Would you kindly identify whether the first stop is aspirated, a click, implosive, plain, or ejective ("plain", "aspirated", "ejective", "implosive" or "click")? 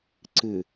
click